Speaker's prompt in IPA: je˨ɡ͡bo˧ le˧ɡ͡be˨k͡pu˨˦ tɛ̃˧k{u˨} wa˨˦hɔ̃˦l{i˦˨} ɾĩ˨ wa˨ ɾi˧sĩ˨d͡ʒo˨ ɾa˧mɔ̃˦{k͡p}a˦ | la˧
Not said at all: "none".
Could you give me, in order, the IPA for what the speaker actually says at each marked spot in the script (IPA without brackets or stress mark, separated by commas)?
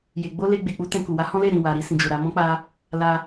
u˨, e˦˨, k͡p